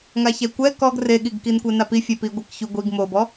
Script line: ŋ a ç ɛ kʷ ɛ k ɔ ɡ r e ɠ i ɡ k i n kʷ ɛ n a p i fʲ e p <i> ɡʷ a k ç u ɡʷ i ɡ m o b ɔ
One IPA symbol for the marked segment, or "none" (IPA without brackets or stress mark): i